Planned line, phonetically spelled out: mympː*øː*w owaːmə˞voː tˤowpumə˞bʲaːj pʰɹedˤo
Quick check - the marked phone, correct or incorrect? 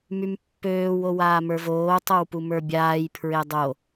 correct